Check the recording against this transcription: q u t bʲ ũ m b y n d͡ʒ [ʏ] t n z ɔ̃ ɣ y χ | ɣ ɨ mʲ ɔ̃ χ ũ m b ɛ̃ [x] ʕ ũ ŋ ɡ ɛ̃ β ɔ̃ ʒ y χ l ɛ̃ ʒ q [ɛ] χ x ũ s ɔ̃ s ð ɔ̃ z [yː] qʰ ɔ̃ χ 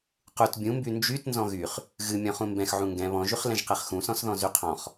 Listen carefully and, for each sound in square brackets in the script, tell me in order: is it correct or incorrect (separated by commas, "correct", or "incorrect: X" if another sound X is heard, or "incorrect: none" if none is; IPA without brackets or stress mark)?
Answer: incorrect: y, correct, correct, incorrect: y